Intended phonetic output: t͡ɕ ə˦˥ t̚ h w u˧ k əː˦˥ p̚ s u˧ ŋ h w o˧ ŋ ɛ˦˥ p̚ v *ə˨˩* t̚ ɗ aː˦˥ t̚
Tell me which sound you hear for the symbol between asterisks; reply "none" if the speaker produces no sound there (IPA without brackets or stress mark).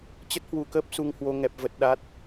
ə˦˥